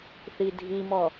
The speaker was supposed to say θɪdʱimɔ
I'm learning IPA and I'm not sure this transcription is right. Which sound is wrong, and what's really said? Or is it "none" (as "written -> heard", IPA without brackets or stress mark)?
ɪ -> i